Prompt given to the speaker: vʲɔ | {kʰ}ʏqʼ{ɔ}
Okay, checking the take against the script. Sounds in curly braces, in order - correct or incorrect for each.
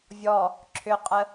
incorrect: ǁʰ, incorrect: ə

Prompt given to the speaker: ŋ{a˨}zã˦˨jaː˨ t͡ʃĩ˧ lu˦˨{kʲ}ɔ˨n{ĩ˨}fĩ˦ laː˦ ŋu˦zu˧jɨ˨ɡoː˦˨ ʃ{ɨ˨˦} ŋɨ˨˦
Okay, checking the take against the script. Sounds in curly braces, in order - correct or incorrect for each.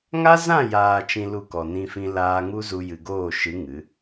incorrect: a˦, incorrect: k, incorrect: ĩ˦, correct

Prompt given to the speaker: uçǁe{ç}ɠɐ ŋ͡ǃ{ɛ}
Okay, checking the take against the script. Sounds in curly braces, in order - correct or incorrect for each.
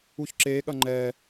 incorrect: none, correct

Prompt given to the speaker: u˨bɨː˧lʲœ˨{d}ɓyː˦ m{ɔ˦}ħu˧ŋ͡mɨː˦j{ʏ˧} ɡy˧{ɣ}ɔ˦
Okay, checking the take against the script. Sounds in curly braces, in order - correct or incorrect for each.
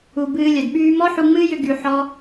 correct, correct, correct, incorrect: ħ

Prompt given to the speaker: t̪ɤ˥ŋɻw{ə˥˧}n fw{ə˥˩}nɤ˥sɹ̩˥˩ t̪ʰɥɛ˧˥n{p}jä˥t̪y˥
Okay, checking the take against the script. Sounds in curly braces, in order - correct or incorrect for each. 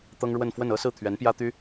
correct, correct, correct

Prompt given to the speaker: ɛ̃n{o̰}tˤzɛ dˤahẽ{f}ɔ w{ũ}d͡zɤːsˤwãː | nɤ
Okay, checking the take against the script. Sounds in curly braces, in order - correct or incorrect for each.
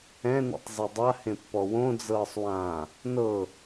incorrect: ṵ, incorrect: pː, incorrect: õ

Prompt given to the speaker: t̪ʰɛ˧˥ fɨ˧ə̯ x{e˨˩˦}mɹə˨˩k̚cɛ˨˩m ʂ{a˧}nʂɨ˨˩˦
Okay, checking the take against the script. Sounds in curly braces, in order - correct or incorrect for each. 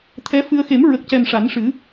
correct, incorrect: a˨˩˦

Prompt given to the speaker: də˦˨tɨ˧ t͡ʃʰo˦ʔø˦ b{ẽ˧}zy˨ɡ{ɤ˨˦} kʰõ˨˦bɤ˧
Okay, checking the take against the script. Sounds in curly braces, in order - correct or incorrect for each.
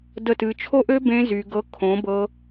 correct, correct

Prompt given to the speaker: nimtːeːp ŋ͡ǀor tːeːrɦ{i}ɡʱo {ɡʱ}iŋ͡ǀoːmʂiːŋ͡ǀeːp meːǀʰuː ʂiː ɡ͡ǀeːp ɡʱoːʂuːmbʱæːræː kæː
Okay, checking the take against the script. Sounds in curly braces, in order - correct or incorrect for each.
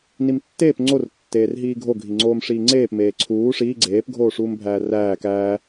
incorrect: iː, correct

